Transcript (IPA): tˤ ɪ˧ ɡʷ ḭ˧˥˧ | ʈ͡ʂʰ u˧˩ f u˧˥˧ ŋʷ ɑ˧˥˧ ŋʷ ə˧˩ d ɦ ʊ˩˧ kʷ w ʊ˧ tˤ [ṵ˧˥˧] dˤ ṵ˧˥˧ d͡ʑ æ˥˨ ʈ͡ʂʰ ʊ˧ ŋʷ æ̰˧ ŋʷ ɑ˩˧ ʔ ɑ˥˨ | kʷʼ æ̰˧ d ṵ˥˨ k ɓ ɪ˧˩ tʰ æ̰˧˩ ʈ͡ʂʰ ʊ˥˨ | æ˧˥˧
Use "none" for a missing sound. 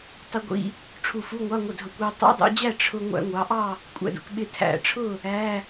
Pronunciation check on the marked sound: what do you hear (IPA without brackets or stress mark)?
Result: ṵ˧˥˧